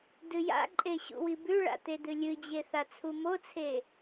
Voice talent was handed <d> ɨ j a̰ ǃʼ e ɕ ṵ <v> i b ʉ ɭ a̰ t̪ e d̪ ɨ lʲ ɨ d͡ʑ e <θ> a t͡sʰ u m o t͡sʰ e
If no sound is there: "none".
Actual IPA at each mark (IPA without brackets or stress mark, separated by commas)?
d, w, θ